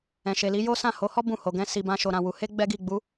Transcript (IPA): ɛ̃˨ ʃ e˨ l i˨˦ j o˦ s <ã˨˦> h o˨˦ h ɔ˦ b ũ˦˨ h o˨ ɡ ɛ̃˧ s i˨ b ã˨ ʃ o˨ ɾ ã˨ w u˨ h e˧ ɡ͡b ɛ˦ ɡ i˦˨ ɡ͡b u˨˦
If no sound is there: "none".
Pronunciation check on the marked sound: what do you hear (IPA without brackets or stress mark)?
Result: ã˦˨